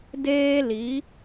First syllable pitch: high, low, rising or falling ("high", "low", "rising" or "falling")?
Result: high